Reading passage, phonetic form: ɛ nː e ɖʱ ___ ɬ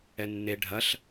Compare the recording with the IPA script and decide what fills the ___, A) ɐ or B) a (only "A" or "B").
A